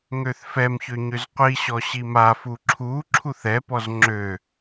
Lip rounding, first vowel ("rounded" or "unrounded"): rounded